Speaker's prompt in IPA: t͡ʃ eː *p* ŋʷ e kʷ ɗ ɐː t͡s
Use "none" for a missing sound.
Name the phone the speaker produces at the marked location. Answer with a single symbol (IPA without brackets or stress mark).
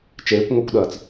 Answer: kʷ